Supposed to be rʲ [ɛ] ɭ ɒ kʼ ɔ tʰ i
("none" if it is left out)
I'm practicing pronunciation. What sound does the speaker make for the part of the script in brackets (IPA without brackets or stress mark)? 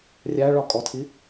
æ